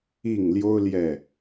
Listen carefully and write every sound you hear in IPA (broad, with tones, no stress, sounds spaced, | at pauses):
i˥˨ ŋ l j o˦ ʊ̯ l j ɛ˥˨